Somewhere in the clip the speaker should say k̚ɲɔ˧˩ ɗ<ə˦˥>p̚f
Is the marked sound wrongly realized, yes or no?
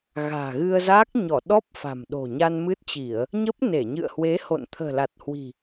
yes